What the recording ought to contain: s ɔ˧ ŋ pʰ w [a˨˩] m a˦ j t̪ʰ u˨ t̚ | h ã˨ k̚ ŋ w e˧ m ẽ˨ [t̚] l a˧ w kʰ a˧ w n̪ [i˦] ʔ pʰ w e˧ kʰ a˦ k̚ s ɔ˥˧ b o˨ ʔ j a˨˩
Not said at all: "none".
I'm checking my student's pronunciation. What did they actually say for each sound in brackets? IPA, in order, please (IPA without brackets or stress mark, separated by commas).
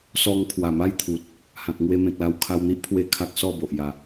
a˨˩, k̚, i˦